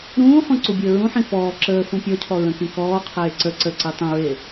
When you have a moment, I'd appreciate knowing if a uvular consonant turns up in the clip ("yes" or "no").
yes